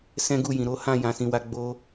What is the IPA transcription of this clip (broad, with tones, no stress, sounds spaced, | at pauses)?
s ɛ̃˦ ɡ u˦˨ j ĩ˨ ɾ o˨˦ h ã˦˨ j ã˨ s ĩ˨ w a˨˦ ɡ͡b o˧